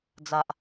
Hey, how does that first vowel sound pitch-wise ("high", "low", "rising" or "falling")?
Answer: low